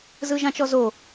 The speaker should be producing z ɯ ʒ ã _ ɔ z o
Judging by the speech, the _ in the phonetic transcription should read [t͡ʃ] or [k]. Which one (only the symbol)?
t͡ʃ